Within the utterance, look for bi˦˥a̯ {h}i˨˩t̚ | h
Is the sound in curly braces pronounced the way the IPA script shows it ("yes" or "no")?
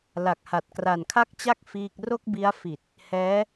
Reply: no